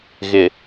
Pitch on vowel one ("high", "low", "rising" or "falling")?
low